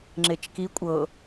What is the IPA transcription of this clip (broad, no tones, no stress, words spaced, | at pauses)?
ŋ͡ǁet͡ʃki kʷʼɤ